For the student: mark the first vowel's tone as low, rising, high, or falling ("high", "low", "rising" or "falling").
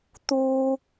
high